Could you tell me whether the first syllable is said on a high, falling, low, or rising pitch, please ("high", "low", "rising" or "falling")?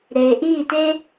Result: low